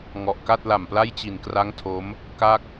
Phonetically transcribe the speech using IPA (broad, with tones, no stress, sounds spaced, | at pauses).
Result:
ŋ ɔ˨˩ ʔ k a˥˩ t̚ l a˨˩ m p l a˥˩ j t͡ɕ i˨˩ n k r a˦˥ ŋ tʰ o˦˥ m | k a˥˩ k̚